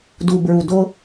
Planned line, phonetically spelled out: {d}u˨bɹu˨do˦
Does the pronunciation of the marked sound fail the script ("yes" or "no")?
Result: no